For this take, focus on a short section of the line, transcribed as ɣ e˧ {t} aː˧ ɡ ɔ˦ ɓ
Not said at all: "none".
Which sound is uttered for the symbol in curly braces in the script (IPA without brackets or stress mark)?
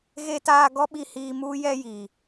t